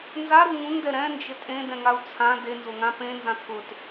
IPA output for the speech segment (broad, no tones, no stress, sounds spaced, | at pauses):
n z a ɾ u ŋ ũ ŋ d ɛ ɾ ɛ̃ n d͡ʒ ɪ tʼ ẽ d ɛ̃ ŋ a u̯ t͡sʰ ã d e n z ʊ ŋ ã p ẽ n z ã t̪ʰ ʊ t